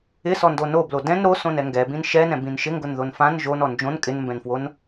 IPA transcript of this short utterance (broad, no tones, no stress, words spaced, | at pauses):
ɪsɔndo noblo dɛ̃n ɾosõnɛ ŋɡɛbĩn ʃɛnɛ̃bĩn ʃɪŋɡʊnðon fãn ʒonɔ nd͡ʒõn kʼɪnmbɛ̃nfwon